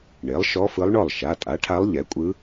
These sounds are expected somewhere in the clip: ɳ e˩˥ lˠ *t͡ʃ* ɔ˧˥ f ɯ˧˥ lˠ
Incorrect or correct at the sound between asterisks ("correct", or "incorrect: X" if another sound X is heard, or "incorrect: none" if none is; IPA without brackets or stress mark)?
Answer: incorrect: ʃ